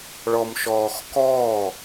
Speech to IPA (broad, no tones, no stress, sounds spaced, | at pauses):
ɭ ɔ m ʃ ɔː x k ɔː